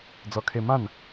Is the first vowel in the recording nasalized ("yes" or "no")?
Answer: no